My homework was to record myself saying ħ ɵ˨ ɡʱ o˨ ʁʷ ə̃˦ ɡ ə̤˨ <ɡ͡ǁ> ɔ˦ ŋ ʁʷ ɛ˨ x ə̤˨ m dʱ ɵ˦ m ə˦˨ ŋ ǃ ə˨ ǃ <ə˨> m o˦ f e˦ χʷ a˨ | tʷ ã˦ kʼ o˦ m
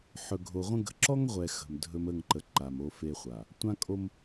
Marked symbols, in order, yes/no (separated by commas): no, no